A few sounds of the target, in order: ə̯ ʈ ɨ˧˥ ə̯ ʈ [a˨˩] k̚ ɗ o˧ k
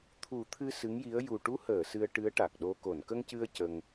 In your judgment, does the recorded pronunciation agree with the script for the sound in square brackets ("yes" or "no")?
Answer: yes